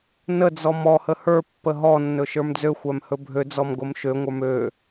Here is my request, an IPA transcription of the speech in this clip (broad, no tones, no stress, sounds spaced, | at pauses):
n ə d͡z ɔ m ɔ h ə h ə˞ pː ə ɦ ɔ nː ɵ ʃ ə˞ m d͡z ø xʷ æ m h ɵ bʱ ø d͡z ɔ m ɡ o m ʃ ø ŋʷ ə˞ m ø